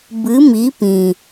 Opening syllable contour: rising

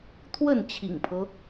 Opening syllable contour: falling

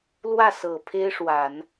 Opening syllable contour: falling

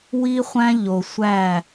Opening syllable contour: high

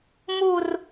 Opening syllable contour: falling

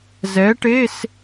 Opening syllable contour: rising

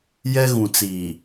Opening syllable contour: high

